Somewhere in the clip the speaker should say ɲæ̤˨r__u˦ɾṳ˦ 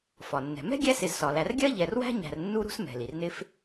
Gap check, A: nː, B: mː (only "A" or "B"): A